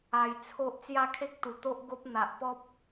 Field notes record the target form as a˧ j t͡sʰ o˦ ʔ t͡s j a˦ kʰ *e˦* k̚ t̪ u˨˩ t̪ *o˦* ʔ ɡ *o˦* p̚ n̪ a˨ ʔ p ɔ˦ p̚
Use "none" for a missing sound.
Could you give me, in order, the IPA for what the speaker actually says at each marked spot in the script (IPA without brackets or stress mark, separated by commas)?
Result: e˦, o˦, o˦